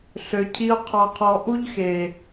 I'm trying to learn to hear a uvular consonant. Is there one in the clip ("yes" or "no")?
yes